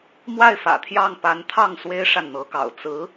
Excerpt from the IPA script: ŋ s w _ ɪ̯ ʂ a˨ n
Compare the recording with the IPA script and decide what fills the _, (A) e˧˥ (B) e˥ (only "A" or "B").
B